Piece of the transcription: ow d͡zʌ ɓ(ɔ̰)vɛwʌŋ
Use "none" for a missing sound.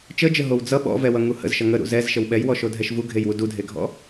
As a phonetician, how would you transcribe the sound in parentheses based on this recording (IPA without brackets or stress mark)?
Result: ɔ̰